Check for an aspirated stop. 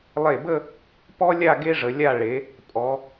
absent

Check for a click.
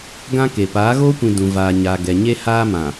absent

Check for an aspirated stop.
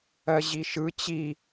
absent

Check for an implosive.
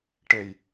absent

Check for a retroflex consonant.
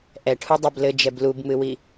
present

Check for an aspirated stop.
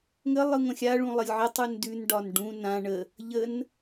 absent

